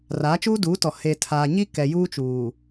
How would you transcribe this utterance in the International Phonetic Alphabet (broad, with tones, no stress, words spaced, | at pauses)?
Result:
raː˨˦t͡ʃuː˦duː˨˦tɔ˨ he˨ tʰaː˨ɲi˦ kɛ˨juː˦t͡ʃuː˨